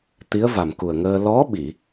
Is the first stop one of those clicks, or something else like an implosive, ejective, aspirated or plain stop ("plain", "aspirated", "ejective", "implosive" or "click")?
plain